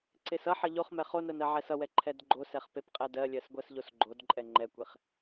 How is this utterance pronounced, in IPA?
ǀ e s ʌ ħ ʌ ʎ o χ m ɛ χ o n ɜ n ɜ ʕ ɛ s ʌ w ɛ ǃʰ ɛ d ɡ͡ǃ o s ɛ χ p e p qʼ ɛ d ɜ lʲ ɜ s ɡʷ ɜ s ʎ o s ɡ͡ǃ o d ǃʼ ɛ ŋ͡ǃ ɛ kʷ e χ

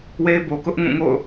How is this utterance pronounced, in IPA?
w e˦ ɪ̯ b o˨ k ʊ˦ ʔ ŋ ũ˦˨ ŋ o̰˦˨ ʊ̯

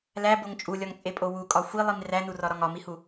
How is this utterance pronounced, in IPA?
l æ b o ŋ t͡ʃʼ u lʲ ɒ ŋ t͡sʼ e pʼ o w u kʼ ɒ xʷ i lˠ i m r æ n u r ɒ ɾ ɒ ŋ ɒ m i h u

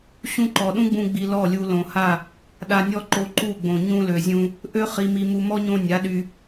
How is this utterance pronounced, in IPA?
ɕ ũ˦ ǃ ɔ˨ ɗ ũ˦ ɡ͡b ũ˧ ɡ͡b i˧ l ɔ˦˨ lʲ u˧ l õ˨ h a˦˨ | ɗ a˧ nʲ ɔ˦ ǃ o˧ ǃ u˦˨ ɡ͡b õ˨ ɲ ũ˧ l ø˨ zʲ ũ˧ | ʔ ø˦ χ i˧ m i˧ m u˧ m ɔ˦ ɲ õ˧ nʲ a˨˦ ɗ y˧

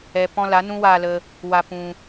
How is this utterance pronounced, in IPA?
ɛ˧ p ɔ̃˦ l a˨˦ n ũ˦ w aː˧ l ə˧ | w a˧ p ũ˧

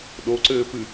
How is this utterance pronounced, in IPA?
ɗ o ǀ ɘː p ɨ

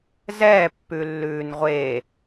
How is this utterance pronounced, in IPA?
z ɛ pː ʉ lː ʉː n ʁʷ e

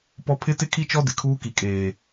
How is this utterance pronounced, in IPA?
p ɔ˦ pʰ ɪ˦ t ɪ˦ kʰ i˦ t͡ʃ ɔ˦ d ɪ˨ kʰ uː˦ k i˨ kʼ eː˨

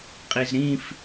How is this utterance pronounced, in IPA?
qʼ i z ɾ ĩ f

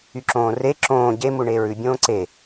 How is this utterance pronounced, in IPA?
y ǁ õː r e ǁ õː ɟ e m u ɳ eː ɹ ʉ bʲ õː ǀ e

